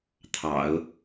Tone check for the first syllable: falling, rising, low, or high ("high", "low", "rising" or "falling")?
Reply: low